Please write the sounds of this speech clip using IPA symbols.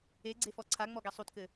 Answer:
eɡ͡ǀefɔ ǀʰaŋ͡mɔɡɛ sˤutkɘ

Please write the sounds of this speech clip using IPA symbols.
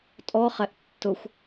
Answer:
tʼɔχɛʔ tːʊxʷ

